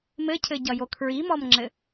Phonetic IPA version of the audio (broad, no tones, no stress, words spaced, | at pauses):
mɘcʰɘɟʌjo kʰɹimɔmŋ͡ǁɘ